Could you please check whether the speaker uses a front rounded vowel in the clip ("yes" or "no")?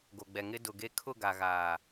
no